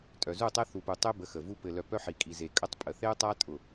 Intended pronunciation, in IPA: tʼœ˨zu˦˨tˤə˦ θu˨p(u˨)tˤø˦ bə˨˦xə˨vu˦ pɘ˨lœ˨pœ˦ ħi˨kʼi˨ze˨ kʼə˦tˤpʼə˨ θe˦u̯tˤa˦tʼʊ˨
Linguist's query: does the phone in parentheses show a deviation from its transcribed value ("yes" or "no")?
no